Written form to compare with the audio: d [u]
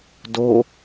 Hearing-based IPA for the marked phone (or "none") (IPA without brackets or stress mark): o